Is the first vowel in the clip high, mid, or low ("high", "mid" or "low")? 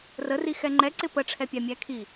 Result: mid